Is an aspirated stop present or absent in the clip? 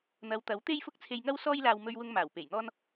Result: present